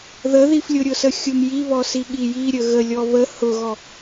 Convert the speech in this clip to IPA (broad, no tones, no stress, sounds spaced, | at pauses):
ð ə ð i f lʲ ʊ ɾʲ ʊ s ə xʲ ʊ m j i β ɔ s i ɠ i j i ɾʲ ə ɣ ə lʲ ɔ β ə h ʊ ɣ ɔ